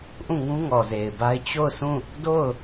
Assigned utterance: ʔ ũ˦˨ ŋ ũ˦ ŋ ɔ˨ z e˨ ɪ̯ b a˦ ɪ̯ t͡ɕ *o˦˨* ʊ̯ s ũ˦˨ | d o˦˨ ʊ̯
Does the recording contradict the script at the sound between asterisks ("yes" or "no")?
no